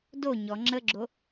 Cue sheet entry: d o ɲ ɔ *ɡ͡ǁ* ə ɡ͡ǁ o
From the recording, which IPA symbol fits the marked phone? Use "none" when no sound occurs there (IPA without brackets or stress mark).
ŋ͡ǁ